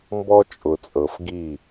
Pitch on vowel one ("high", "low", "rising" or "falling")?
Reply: high